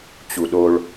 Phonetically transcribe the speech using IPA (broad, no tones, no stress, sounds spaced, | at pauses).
t͡ɕ u ɗ o ɭ